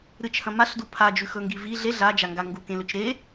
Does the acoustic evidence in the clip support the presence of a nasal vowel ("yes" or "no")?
yes